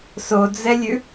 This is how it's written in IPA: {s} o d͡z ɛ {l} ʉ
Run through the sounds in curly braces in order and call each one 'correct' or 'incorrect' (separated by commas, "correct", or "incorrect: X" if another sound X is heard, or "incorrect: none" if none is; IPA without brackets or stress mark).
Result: correct, incorrect: lʲ